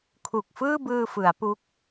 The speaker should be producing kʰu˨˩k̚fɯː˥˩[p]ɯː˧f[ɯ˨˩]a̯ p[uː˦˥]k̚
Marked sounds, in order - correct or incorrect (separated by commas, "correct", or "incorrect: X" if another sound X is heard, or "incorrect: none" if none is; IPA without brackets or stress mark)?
incorrect: b, incorrect: ɯ˩˦, incorrect: u˦˥